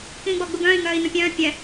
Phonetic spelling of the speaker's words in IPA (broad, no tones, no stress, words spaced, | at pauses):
kĩːɡ͡bɔɡ͡buɡœ̃ːi̯ ŋœːi̯nũpʲœ̃ː pʲɛ